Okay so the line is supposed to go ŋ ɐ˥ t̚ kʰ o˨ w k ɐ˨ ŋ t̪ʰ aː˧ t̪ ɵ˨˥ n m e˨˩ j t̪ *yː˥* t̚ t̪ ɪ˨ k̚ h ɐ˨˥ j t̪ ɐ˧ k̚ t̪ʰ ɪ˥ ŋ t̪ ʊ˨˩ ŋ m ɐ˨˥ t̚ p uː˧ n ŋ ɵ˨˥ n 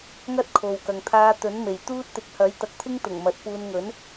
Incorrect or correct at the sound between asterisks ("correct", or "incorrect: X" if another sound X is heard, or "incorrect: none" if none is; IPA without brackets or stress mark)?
incorrect: uː˥